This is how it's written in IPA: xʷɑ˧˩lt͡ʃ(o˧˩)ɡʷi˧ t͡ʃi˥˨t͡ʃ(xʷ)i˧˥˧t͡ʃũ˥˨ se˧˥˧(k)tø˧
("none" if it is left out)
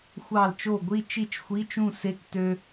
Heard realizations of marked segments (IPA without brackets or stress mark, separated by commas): o˧˩, xʷ, k